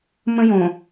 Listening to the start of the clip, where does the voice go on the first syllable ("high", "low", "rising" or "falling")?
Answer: high